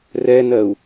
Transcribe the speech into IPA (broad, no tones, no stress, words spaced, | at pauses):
rɛnɜu̯